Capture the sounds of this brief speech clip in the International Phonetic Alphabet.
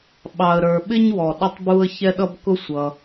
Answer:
ɓ ɑ˩ ə̯ ɾ ə˞˩ ɓ ɪ˥ ɲ w ɔ˩ ɗ ə˥ tˤ b u˥ ə̯ ç ɛ˥ ɗ ʌ˥ b k ʊ˥ sʷ ʌ˩

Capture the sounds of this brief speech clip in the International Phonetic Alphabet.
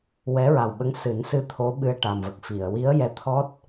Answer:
w ɛ˧˥ ɹ a˨˩ w ɓ ə˧˥ ŋ s ɨ˨˩˦ n s ɨ˧ t̪ʰ o˧˥ ɓ ɨ˧ ə̯ ʈ a˨˩ m v ə˨˩ k̚ f i˨˩˨ ə̯ w i˧˥ ə̯ j ɛ˧ t̪ʰ ɔ˦˥ t̚

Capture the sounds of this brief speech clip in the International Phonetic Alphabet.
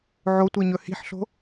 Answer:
ʕ o tʷ i ɲ ɵ h i̤ ħ ɬ o̤

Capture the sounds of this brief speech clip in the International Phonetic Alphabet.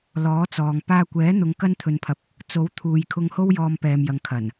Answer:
l ɔː˨˥ t͡s ɔː˨ ŋ p aː˧ kʷ ɛː˨˥ n̪ ʊ˨˧ ŋ k ɐ˥ n t̪ʰ ɵ˧ n pʰ ɐ˧ p̚ | t͡s o˨˥ w t̪ʰ uː˨ j kʰ ʊ˧ ŋ h o˥ w j ɔː˧ m p ɛː˨ m j ɐ˨ ŋ kʰ ɐ˨˩ n

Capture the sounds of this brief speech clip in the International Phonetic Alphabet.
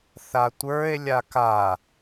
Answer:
θ a tʷ ə˞ e̯ lʲ a k a

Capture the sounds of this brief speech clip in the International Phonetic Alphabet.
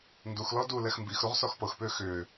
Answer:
n d u x l ɔ d u l ɛ x m b i x ɾ u ʁ s ɔ x p ɤ x p ʏː x ʏː

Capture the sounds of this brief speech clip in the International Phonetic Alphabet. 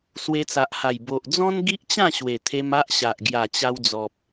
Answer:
s w e˧ t͡s a˨ ʔ h a˨˩ j b o˨ ʔ d͡z ɔ̃˦ n ɡ i˦ ʔ t͡ɕ ã˥˧ ɕ w e˨˩ t̪ʰ e˧ m a˦ ʔ ɕ a˨ ʔ ɡ j a˨˩ t͡ɕ a˧ w d͡z ɔ˨ p̚

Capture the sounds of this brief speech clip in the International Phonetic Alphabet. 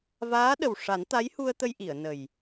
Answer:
v aː˧˥ ɗ ə˨˩ w ʂ a˨˩˦ n t̪ a˧˥ j h u˧ ə̯ t̪ ə˧ j ʔ i˨˩˨ ə̯ n ə˨˩ j

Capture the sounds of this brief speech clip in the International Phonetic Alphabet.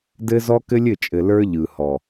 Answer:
d ɘ˦ z ɔ˦ k ɘ˦ lʲ ɘ˦˨ t͡ʃʼ ɘ˨ l ə˞˦ ʎ ɯ˨ h ɔ˨

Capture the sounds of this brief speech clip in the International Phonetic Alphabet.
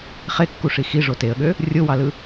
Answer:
χ e kː u ʂ i x i ʐ o t e ə̯ ɠ ø | rʲ o w ɑ l ɯ

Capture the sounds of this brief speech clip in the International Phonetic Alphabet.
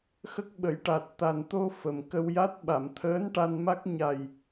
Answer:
x ə˦˥ k̚ ɓ ə˨˩˦ j ʈ a˨˩ t̚ t̪ a˨˩ n t̪ o˧ f ə˨˩ m k ə˧ w j a˦˥ t̚ ɓ a˨˩˨ m t̪ʰ əː˧˥ n ʈ a˧ n m a˦˥ k̚ ɲ a˨˩ j

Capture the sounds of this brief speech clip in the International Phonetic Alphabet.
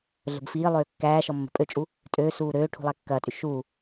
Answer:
ɮ ə̤ b f iː lˠ øː kː æː ʃ ɔ mː ə̤ pʼ ø t͡ʃʼ u | tʼ øː s uː ɾ øː ʈʰ ṳ lˠ æ kː ɐː tʼ y ʃ uː

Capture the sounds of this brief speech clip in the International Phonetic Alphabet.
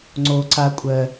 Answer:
ŋ͡ǀ o ǀ a kʷʼ ɜ

